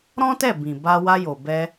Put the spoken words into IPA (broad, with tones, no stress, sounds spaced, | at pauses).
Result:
ɾ ɔ̃˦ t ɛ˦˨ b ĩ˨ b a˧ w a˧ j o˨ b ɛ˧